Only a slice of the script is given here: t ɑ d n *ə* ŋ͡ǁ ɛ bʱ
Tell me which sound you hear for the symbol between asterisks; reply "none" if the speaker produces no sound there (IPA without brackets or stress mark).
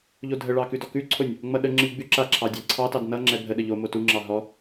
ʌ